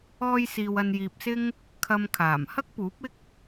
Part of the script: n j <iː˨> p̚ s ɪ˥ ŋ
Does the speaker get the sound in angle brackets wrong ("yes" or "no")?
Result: no